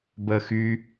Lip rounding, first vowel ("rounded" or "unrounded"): unrounded